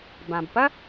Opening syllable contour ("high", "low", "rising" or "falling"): low